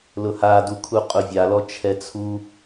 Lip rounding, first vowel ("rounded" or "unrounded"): rounded